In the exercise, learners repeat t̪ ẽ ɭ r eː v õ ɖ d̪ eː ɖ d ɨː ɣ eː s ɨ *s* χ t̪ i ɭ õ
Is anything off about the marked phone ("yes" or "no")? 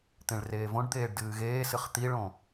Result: yes